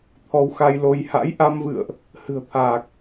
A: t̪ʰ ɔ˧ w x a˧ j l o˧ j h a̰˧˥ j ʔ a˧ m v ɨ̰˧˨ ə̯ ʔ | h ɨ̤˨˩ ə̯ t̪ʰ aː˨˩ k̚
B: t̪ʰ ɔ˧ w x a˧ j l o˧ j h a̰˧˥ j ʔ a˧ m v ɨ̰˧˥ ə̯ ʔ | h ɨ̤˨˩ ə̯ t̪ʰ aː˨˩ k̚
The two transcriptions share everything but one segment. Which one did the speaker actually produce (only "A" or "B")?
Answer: A